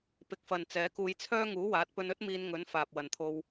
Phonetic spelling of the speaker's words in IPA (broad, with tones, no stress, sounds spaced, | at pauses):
p ɪ˨ k̚ f ɐ˨ n t͡s ɛː˨˥ k uː˧ j t͡sʰ œː˥ ŋ uː˨˥ w aː˨˥ t̚ p ɵ˧ n ɵ˥ t̚ m iː˧ n ŋ ɵ˨˥ n f aː˨ p̚ w ɐ˨˧ n t̪ʰ o˧ w